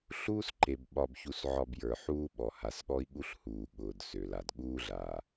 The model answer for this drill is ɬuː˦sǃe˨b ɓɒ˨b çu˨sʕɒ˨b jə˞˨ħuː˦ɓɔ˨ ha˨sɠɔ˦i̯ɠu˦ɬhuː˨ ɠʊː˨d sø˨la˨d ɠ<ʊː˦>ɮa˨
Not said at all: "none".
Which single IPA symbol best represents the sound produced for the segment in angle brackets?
uː˦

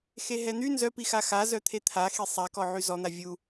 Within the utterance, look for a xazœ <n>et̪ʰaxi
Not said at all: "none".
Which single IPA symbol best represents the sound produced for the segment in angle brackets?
t̪ʰ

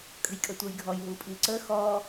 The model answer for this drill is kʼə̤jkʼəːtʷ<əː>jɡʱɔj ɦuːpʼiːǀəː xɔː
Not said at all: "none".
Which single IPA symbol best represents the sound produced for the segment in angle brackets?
əː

